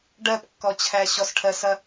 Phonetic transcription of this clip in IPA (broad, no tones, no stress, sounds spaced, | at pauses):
ɖ ɜ p kː ɔ t͡ɕʰ æ ɕ ɔ s ʈʰ ɜ s ɐ